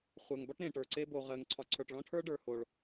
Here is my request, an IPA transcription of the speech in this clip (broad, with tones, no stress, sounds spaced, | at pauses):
χʷ ɜ˨ ŋ b ɒ˦ ʈ ɾ ẽ˨ ʈ ə˞˨ ǀ e˦ b o˨ ʁ ɜ˨ ŋ ǀʰ ɒ˨ ǀʰ ə˞˨ ʈ ɭ ɔ̃˦ ʈʰ ə˞˦ ɖ ə˞˨ h o˨ ɭ